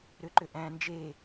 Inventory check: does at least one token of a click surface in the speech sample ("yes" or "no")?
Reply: yes